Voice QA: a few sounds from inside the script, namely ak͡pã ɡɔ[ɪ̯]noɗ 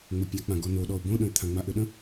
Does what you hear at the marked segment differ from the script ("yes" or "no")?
yes